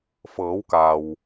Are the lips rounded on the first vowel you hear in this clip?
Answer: no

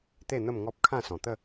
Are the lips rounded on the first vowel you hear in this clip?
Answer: no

